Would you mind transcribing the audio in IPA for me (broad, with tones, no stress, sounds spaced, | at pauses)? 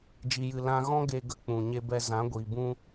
d͡ʒ i˨ j ɨ˨ l ã˧ ɣ ɔ̃˦ ɡ e˧ ɡ ə˧ k͡p ũ˨ ɲ e˧ b ɛ˧ z ã˨˦ ɡʷ iː˨ b ũ˧